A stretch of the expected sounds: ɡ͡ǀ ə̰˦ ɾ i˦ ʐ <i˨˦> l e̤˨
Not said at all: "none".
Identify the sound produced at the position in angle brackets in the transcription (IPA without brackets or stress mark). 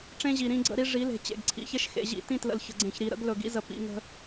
i˨˦